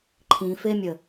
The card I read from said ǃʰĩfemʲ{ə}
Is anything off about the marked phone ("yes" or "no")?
no